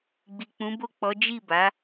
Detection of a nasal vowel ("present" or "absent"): present